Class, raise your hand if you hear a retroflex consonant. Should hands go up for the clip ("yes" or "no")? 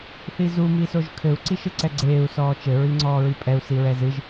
no